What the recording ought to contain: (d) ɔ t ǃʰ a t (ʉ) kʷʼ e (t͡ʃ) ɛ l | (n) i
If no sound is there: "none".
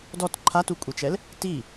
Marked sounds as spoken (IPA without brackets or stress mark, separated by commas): d, u, t͡ʃ, t